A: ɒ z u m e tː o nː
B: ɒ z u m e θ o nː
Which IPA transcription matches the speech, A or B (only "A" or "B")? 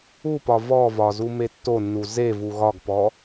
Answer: A